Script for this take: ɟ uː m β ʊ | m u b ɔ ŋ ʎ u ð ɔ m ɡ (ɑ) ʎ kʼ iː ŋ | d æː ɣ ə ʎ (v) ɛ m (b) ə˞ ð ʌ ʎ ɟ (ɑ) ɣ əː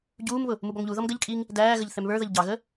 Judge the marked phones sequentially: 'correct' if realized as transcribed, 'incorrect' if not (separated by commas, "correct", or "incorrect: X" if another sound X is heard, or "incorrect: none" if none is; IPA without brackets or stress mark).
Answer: incorrect: ə, incorrect: θ, incorrect: β, correct